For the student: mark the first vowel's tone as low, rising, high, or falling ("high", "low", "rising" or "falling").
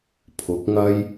rising